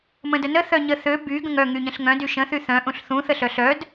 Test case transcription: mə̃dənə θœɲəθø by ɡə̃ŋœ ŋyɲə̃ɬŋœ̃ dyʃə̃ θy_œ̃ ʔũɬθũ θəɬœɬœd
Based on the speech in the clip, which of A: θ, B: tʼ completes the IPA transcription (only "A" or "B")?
A